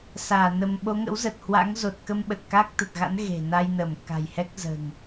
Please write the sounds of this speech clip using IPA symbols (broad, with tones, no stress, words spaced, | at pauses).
saː˧˩ nə˧m ɓo˨˦ŋə̰˧˥wzə˨˩t̚ hwa̰˧˥ŋzo˨˩t̚kə˧m ɓə˨˩t̚ka˦˥k̚ t̪ə˨˩t̚ɣa̰˧˥n ɣe̤˨˩na˧jnə˧˩mka̤˨˩j hɛ˦˥k̚zə̤ː˨˩ŋ